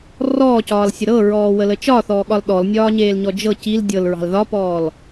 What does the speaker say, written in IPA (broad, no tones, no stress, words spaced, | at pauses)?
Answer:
rɔːcɒːlsʲə ɾɤɹɔːwələ t͡ʃɒθɔːɠɒl ɗɔlnʲɒːɲeːlɲɔ d͡ʒɤ cil dʲɤlɹɑ̤l ðɒpɔːl